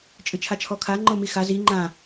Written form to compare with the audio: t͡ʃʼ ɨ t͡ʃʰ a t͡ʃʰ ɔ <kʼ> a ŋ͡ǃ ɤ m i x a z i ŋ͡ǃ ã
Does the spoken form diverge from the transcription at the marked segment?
yes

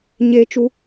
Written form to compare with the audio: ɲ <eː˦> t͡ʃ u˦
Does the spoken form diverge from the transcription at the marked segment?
no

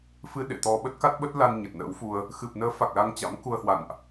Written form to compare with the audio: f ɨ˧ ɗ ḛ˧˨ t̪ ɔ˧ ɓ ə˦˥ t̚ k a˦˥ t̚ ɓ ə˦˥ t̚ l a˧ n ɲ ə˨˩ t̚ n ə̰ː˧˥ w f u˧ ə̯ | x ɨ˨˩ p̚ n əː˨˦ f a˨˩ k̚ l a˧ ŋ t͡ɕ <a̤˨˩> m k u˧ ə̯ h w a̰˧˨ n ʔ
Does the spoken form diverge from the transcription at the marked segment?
yes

